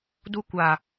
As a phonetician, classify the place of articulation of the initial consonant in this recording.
alveolar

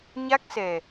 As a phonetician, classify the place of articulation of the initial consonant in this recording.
palatal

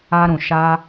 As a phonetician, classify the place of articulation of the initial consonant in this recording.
alveolar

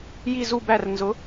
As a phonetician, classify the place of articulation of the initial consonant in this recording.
palatal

